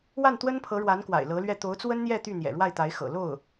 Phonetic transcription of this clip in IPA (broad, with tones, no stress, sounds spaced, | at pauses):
w a˥˩ n t̪ w ə˥ n pʰ ɤ˧˥ ɻ w a˧˥ n k w a̰˨˩ ɪ̯ l ɤ˧˥ l ɥ ɛ˥˩ t̪ o˧˥ ʊ̯ t͡s w ə˥ n n̪ j ɛ˥˧ t̪ y˥˩ n̪ j ɛ̰˨˩ ɻ w a˥˩ ɪ̯ t̪ a˧˥ ɪ̯ x ɤ̰˨˩ l o˥˩ ʊ̯